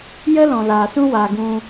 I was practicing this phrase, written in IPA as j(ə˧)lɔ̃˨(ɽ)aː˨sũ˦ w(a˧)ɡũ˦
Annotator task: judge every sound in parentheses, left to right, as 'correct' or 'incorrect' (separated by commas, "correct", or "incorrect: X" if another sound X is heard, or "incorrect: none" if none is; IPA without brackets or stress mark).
incorrect: ə˦, incorrect: l, correct